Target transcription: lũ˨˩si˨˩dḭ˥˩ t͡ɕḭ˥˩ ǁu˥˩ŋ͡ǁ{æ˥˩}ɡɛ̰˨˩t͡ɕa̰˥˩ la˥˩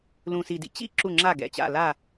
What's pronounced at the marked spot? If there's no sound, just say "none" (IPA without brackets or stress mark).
a˥˩